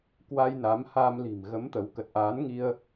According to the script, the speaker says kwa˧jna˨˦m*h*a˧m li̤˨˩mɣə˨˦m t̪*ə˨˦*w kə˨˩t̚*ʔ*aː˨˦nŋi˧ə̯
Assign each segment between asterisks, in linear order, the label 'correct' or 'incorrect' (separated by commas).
correct, correct, correct